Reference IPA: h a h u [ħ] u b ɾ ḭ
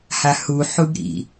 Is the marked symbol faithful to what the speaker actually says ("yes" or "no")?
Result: yes